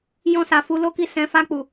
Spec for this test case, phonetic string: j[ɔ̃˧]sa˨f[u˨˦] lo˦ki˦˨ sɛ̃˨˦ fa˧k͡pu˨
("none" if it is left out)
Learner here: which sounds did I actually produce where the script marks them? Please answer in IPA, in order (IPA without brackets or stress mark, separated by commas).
ɔ̃˧, u˨˦